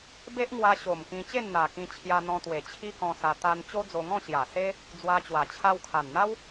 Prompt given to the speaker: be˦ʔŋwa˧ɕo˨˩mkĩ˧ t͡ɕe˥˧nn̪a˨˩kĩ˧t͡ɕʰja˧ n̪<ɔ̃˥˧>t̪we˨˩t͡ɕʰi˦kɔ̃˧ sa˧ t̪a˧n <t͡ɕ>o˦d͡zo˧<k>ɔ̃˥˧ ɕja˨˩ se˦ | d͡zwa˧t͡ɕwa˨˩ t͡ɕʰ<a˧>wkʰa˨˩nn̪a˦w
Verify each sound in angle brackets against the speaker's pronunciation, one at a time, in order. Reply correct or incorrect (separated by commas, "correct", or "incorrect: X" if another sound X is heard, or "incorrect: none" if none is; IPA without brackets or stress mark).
incorrect: ɔ̃˧, correct, incorrect: ŋ, correct